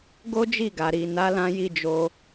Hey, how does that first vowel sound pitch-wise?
high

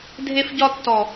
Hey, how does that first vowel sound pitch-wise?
high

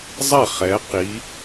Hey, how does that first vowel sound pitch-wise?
falling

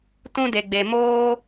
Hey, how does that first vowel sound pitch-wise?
high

